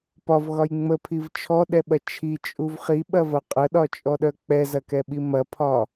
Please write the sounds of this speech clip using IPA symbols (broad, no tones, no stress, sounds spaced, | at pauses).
p ɒ v ɣ ɒ j ŋ͡m ə pʰ i v t͡ʃʰ ɔ ɗ ɛ ɓ ɐ t͡ʃʰ i t͡ʃʼ u v χ i ɓ ɐ v ɐ qʼ ə ɗ ɒ t͡ʃʼ ɔ ɗ œ k͡p ɛ z ɐ k ɛ ɓ i m ɐ pʰ ɒ